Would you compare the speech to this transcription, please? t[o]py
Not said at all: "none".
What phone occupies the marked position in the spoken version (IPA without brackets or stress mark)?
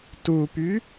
u